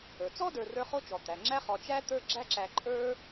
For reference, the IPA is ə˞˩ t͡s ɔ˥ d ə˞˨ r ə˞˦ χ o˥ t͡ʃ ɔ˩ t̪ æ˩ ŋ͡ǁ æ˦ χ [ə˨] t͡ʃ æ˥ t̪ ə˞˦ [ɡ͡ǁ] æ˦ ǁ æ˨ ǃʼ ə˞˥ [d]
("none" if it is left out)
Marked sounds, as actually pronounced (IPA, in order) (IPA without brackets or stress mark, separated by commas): ɔ˨, ɡ͡ǁ, none